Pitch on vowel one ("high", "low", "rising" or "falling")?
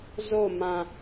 falling